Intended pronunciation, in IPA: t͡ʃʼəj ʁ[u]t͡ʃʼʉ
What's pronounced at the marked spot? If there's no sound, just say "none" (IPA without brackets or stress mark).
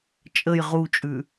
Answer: u